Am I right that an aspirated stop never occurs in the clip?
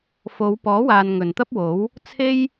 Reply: no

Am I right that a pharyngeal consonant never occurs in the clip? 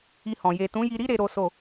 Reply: yes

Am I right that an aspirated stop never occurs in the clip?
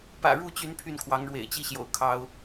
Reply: no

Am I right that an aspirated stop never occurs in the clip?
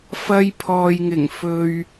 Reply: no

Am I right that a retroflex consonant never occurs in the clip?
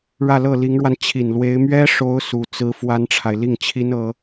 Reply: no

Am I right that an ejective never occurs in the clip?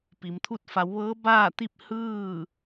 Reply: yes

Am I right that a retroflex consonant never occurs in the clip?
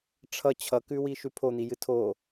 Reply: no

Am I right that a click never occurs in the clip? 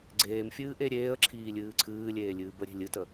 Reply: no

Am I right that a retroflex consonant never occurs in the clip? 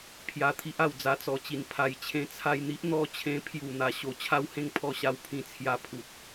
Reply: yes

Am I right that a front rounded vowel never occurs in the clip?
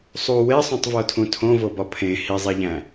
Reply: yes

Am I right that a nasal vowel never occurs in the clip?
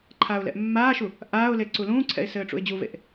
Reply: no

